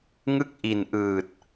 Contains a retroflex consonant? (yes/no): no